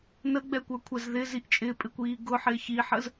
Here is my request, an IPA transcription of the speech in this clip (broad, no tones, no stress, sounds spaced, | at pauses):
n ə ɡ͡b ɛ kʷ ə˞ kʷʰ ɛ z ð ɪ z i ʔ t͡ʃʼ ɪ pʼ ɪ kʷ iː ɡ ʊ ħ ɪː ç i ħ ə z